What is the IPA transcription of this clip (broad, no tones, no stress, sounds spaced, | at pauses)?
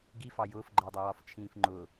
ɡ i f ɑ j ʊː f ɡ͡ǃ ɜ dˤ ɛ w ɒ f t͡ʃʰ ĩː f ŋ͡ǃ ʊː